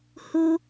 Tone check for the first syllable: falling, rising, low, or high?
high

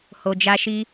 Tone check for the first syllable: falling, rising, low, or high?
low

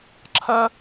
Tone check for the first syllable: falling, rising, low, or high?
high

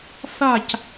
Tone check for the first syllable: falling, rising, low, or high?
falling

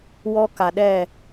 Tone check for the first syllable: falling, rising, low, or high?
high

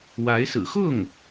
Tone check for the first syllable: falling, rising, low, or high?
rising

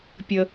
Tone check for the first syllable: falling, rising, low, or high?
low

